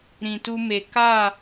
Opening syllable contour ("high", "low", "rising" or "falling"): low